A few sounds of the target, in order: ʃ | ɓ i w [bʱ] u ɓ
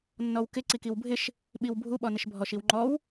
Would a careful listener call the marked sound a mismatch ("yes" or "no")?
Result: no